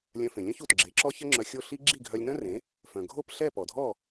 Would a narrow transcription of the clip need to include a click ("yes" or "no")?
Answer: yes